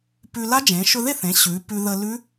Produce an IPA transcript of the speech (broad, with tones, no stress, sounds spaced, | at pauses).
p ʉ˧ l a˦˥ d͡ʒ ẽ˩˧ ʃ ɵ˧ ð e˥˩ θ ẽ˩˧ ɕ ʉ˩˧ p ʉ˧ ð ə˧ l ʉ˦˥